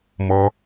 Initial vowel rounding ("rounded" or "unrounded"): rounded